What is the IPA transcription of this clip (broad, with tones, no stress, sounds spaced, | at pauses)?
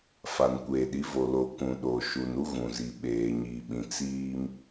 f a˨ n kʷ eː˨ ɗ i˨˦ v o˨ l o˨ k ũ˨ ɗ o˨ ʃ u˨ n u˦ ɣ ũ˨ z i˨ ɓ eː˨ ɲ iː˨ ɓ ĩ˨ t͡s iː˦ m